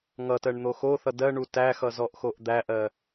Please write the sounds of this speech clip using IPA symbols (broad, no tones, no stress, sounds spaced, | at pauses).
ŋ ʌ t ɜ ɳ n̪ o x o θ ʌ d ɜ ɳ u t æ x ʌ z ɔ ʔ x o ʔ d̪ æ ʔ ɜ